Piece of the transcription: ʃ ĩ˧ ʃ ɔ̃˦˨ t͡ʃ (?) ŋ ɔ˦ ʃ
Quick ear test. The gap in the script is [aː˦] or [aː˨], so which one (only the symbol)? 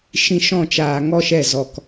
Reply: aː˨